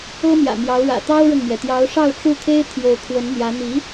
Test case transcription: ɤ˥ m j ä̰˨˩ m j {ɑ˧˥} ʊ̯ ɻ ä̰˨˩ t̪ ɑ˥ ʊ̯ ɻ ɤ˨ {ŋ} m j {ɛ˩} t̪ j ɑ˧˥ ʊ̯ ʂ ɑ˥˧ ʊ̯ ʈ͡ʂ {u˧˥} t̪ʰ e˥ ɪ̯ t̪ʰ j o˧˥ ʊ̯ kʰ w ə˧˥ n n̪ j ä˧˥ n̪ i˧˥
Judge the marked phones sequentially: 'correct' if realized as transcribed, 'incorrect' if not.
correct, correct, correct, incorrect: u˥˩

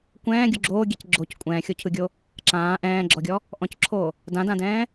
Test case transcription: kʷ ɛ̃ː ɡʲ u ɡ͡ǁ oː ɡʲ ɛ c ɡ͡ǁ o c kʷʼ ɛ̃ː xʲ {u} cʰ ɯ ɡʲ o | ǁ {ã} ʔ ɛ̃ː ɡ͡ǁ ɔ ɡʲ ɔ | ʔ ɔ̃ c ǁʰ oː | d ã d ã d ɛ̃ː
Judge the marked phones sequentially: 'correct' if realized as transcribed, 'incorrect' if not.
incorrect: o, incorrect: ãː

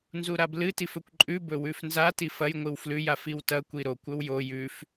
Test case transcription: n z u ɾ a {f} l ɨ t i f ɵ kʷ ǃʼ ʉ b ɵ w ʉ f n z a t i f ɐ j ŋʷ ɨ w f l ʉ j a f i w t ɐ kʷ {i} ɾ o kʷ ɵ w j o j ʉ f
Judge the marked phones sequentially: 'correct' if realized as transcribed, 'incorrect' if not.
incorrect: b, correct

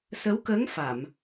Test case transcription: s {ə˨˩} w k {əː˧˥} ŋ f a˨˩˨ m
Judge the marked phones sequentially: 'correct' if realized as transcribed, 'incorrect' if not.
incorrect: ə˧˥, correct

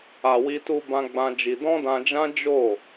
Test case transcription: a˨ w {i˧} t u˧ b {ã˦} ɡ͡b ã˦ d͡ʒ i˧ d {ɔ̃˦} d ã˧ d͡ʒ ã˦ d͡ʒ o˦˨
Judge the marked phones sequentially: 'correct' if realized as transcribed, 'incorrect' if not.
correct, correct, correct

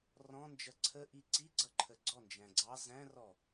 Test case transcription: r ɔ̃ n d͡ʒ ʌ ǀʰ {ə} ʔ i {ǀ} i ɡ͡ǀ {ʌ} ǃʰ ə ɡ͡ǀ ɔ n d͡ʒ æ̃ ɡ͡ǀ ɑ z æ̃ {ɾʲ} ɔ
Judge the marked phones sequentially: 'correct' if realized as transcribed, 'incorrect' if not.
correct, correct, correct, incorrect: r

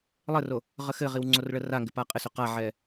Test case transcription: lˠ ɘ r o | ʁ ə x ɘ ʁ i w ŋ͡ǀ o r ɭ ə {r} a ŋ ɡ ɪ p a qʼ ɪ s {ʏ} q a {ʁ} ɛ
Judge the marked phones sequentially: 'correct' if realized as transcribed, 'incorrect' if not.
correct, correct, incorrect: ʕ

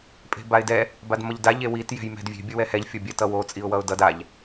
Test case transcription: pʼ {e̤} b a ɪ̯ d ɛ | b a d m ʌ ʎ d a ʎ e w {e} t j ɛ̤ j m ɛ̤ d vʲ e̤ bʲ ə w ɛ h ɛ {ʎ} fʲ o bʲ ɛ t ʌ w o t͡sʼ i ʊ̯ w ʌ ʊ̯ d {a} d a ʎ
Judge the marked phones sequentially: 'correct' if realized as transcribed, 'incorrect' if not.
correct, incorrect: i, correct, incorrect: ʌ

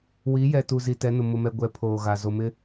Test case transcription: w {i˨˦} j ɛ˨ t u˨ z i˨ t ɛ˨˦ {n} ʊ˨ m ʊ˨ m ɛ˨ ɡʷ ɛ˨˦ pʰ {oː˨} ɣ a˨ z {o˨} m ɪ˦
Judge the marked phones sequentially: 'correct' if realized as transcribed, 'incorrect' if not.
correct, correct, correct, correct

